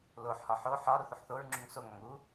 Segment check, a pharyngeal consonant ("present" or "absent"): present